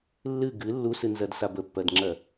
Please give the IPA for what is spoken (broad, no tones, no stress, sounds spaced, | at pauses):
lː ɨ ɡ ɨ lː u s ɨ n z ɜ d s a b ə pː ɜ d ŋ͡ǁ ɜ